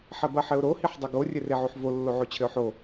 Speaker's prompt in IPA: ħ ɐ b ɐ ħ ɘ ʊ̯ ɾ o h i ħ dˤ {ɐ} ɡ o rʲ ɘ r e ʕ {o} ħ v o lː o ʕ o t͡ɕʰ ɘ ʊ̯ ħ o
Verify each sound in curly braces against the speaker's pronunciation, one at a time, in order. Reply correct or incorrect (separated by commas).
correct, correct